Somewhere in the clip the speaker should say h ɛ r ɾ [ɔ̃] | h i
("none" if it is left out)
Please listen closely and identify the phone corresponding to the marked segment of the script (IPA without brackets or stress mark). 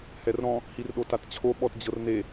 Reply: ɔ̃